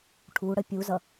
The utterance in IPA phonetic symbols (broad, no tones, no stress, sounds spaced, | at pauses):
ʈʰ u ɽ ə pʲ u z ʌ